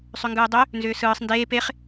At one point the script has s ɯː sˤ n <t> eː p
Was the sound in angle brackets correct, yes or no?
no